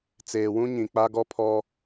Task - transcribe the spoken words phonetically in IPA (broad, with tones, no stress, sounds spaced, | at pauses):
t͡s eː˨ w ũ˦ ɲ ĩ˨ k͡p a˦ ɡ ɔ˦ pʰ ɔ˦